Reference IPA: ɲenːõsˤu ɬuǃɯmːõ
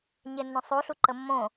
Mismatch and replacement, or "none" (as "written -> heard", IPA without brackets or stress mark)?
ɯ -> ə